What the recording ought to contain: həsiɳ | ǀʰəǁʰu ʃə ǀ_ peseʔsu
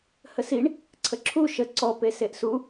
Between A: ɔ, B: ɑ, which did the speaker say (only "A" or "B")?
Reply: A